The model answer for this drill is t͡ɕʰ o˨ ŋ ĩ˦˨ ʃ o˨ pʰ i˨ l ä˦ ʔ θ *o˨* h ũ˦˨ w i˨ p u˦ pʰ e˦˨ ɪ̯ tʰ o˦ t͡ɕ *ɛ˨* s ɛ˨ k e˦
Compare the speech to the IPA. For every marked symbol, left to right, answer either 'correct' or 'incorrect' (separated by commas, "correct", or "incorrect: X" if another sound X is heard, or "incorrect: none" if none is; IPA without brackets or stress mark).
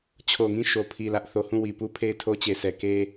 correct, incorrect: e˨